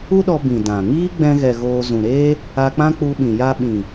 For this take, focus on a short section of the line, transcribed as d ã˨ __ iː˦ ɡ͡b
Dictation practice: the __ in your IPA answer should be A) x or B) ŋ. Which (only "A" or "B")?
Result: B